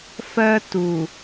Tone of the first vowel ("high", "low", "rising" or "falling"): high